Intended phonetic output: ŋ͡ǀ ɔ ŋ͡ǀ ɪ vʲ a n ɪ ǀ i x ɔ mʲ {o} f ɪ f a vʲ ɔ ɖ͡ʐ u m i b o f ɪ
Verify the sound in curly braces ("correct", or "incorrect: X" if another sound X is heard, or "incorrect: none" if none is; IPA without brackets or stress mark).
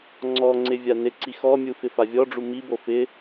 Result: incorrect: u